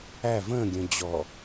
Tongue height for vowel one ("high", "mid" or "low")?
low